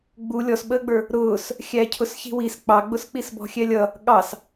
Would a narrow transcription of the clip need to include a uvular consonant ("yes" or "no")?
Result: no